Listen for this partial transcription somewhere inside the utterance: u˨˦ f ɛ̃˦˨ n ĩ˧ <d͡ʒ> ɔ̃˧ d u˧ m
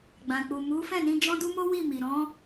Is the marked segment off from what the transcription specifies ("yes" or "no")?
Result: no